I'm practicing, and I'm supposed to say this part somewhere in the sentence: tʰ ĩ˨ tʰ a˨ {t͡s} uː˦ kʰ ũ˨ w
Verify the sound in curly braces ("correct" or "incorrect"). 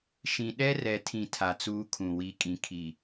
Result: correct